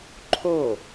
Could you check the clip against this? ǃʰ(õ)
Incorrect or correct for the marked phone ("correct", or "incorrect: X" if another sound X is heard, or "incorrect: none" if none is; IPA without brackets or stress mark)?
incorrect: o